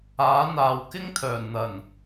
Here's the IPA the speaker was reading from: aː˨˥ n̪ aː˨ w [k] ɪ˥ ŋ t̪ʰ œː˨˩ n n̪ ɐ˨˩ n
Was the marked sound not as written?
no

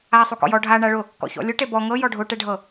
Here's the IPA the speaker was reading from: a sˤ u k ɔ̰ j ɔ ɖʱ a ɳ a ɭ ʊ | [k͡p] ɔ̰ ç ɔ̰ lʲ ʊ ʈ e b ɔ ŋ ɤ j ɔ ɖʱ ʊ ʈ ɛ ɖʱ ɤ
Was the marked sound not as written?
yes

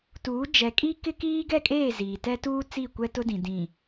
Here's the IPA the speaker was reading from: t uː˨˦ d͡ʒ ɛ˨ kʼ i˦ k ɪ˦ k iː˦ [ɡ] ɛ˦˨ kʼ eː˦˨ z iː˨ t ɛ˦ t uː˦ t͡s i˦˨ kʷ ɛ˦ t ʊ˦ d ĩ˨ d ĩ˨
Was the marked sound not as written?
no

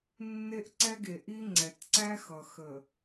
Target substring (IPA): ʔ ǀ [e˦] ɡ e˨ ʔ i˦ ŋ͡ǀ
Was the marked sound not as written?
yes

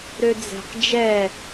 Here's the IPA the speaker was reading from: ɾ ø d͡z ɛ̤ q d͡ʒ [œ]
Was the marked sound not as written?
yes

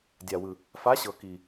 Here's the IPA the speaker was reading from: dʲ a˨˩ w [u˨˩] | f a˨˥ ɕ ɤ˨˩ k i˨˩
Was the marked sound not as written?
yes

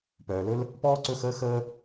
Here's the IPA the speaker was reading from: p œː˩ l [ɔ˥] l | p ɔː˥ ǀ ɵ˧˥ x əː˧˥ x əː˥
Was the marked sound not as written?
yes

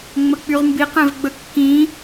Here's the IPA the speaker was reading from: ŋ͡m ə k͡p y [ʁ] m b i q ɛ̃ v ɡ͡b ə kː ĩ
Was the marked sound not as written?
no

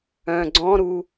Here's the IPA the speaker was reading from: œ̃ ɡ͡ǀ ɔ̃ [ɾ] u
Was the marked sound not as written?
no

